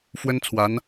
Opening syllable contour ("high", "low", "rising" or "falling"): high